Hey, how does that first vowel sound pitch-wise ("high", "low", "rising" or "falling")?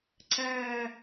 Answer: low